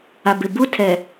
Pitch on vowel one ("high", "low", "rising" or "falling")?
low